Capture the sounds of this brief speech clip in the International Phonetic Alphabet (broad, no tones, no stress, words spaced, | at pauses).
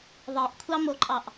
ðˤeʔkʷʰɑmoǃʼɑʔ